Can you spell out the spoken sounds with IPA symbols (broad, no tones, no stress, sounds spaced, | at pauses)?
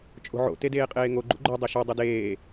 t͡ʃʼ o̤ ʕ o̰ t e d eː qʼ eː ŋ o ɡ͡ǃ ṵ ɡ͡ǃ o dˤ e ʃ o dˤ ɯ d eː